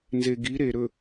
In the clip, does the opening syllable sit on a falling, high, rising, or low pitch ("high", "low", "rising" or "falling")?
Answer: low